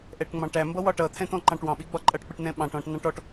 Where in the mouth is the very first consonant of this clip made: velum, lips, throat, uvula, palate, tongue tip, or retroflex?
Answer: throat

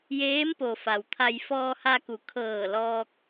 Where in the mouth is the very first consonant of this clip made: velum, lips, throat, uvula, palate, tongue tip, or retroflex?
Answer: palate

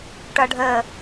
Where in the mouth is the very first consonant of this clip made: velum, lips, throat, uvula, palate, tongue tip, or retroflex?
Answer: retroflex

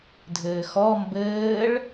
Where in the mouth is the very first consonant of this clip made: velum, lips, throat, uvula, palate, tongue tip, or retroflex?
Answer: tongue tip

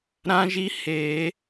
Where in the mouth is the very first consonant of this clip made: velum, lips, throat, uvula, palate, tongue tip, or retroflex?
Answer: tongue tip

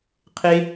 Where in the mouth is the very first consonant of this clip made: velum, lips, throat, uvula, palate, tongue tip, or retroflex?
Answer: uvula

